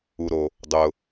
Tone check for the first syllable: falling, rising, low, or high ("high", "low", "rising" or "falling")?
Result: low